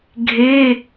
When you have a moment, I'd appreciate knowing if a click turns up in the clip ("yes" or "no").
no